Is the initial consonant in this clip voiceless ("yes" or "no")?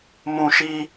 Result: no